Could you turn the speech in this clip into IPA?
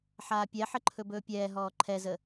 ħ aː pʲ ɛ ħ ə ǃʰ ɵ b ɵː pʲ ɛː ɦ ɔː ǃʰ ɛ z ə

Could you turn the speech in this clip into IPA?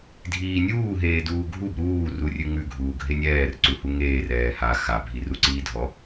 dʱ iː nʲ uː ɦ eː d uː ɡʱ u b ɾ uː r u rʲ ʉ ŋ ʉ ɡʱ uː ɡʱ e nʲ ɛː r ǀ u h u ŋ eː r ɛː h a x a bʱ i r u ǀ iː dʱ ɔ

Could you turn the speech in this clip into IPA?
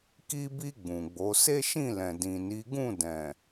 k i˧ b i˧ ɡ͡b ũ˨ ɡ͡b o˨˦ s e˦ ʃ ĩ˦˨ l ɛ̃˨ d ĩ˨ n i˨˦ ɡ ũ˦˨ d ɛ̃˨

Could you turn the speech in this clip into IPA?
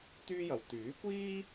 t̪ yː˥ j ɐ˨ w t̪ yː˨˥ kʷ iː˥

